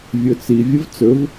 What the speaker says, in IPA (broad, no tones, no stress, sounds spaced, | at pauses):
vʲ ɵ t͡s i vʲ ə v t͡s ɵ v